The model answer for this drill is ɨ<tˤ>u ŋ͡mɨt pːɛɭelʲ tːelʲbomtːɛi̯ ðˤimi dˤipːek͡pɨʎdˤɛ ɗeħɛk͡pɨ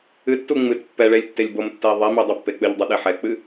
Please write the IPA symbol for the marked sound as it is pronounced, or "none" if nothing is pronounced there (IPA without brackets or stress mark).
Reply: tː